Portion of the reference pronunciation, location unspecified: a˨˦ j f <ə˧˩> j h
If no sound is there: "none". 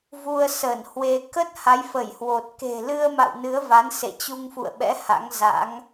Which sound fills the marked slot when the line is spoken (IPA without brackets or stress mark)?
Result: ə˧˩